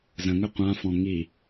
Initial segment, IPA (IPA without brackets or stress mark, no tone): z